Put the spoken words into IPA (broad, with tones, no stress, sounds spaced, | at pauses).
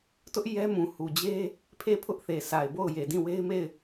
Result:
t ʊ˦ ʔ j ɛ˦ m ũ˨ h u˨ d͡ʑ e˦ | pʰ e˦˨ pʰ ʊ˦ ʔ θ e˨ s a˨ ɪ̯ b o˦˨ ʊ̯ j e˨ d ĩ˦˨ w e˦ ɪ̯ m e˦˨ ɪ̯